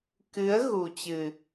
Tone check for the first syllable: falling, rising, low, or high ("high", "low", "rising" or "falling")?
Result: rising